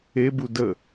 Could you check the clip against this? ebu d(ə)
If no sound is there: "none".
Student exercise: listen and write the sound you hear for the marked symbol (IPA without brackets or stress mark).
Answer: ə